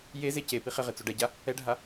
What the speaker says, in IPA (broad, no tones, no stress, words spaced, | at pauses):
je zecepi χɪʁɪ t͡soɖɛɟa | ɛɖʱa